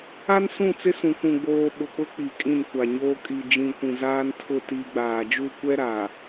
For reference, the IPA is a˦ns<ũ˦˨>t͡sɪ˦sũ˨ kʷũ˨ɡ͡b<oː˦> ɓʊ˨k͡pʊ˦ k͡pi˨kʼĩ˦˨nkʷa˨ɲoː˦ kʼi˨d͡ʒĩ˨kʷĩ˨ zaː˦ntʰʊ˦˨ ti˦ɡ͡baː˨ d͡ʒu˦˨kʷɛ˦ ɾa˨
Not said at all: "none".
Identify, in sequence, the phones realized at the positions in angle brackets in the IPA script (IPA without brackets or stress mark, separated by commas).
ũ˦˨, oː˨